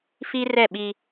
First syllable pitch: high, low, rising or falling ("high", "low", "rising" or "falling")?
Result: high